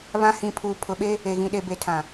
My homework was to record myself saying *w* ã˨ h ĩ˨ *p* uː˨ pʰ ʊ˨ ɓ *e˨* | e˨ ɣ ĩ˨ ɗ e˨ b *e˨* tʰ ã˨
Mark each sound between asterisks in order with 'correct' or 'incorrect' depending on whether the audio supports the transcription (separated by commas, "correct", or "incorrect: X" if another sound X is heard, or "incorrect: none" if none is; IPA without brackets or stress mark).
incorrect: β, incorrect: pʰ, incorrect: e˦, correct